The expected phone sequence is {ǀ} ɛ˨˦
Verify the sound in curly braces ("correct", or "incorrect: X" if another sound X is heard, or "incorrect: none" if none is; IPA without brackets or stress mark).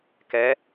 incorrect: k